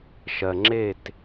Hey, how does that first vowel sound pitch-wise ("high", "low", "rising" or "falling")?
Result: low